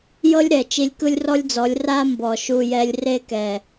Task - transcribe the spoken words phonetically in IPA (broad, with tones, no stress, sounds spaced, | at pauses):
j ɤ˦ lʲ ɾ ɛ˨ t͡ʃ i˧ lʲ k ɯ˦ lʲ r ɔ˦ lʲ d͡z ɔ˨˦ lʲ r a˦ m b ɔ˨ ʃ u˧ j ɛ˧ lʲ r e˦ k ɛ˨